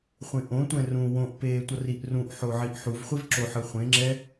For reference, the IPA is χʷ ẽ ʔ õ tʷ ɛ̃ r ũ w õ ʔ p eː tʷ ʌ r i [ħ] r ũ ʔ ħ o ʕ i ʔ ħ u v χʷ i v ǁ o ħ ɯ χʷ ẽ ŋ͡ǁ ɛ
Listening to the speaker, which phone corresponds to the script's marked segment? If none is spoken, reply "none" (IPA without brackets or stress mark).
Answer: ʔ